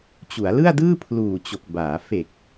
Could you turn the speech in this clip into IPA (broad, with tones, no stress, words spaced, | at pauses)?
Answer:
t͡ɕu˩˦a̯lɯ˥˩a̯dɯː˥˩ pʰluː˨˩t͡ɕo˨˩k̚baː˩˦ fe˨˩k̚